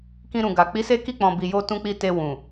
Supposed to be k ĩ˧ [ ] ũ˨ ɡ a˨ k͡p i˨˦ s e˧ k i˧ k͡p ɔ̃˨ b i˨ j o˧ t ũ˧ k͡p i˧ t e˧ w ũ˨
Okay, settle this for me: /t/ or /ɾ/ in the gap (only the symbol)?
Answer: ɾ